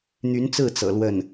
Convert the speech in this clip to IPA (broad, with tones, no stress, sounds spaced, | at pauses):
n̪ y˧˥ n t͡s ɹ̩˥˩ t͡s ɤ̰˨˩ l w ə˥˩ n